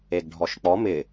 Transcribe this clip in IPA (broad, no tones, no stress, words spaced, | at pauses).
eɡɖʱɔʃk͡pɔ mɪ